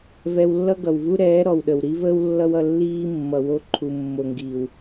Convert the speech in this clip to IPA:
v ɛ˧ w lː ʌ˦ ɡ ʌ˨ w v u˦ ɾ ɛː˨˦ ɾ ɔ˨ w ɗ ə˨ w ɾ i˦ v əː˦ w lː ʌ˦ w ʌ˧ lː iː˦ mː ʌ˨ w o˧ ǃʰ u˨ mː o˨ ŋ ɡ iː˨ w

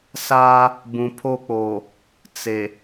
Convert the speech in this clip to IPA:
s aː˦ | b ũ˨ pʰ o˦˨ k͡p oː˨ | t͡s e˨

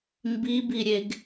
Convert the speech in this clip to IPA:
m b i b i ɾʲ e ɡ

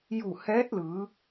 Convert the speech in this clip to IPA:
j u˧˩ h ɛː˧˥ t̚ l ɯː˩˧

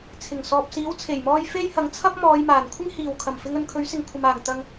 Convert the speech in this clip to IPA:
t͡sʰ ɪ˨˩ ŋ s ɔː˨ p̚ s iː˨˥ w t͡sʰ e˨˩ j m ɔː˧ j f e˥ j h ɐ˨˥ ŋ t͡sʰ ɐ˥ p̚ m ɔː˨˧ j m aː˨˩ n kʷʰ ɪ˥ ŋ h iː˨˩ w kʰ ɐ˨˩ m f ɪ˧ ŋ ɵ˧ n kʰ ɵ˨˥ ɥ s ɪ˨ ŋ kʷʰ ɐ˨ m aː˨˩ ŋ t̪ ɐ˨ ŋ

